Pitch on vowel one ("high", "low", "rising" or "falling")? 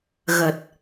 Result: low